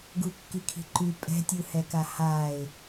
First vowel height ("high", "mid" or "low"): high